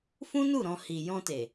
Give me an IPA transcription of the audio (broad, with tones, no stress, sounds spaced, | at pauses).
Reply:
f ũ˦ n u˦˨ ɾ ɔ̃˧ h i˨ j ɔ̃˧ t e˨